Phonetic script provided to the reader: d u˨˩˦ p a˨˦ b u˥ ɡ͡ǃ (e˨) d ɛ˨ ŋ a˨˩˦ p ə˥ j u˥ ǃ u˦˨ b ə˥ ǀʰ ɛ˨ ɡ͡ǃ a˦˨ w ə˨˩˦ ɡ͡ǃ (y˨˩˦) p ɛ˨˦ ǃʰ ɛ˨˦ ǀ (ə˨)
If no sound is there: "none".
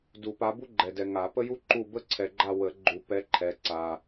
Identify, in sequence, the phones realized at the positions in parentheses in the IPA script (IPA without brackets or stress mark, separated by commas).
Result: ɛ˨, u˨˩˦, a˨